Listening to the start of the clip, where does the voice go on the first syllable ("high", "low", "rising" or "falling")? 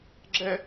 high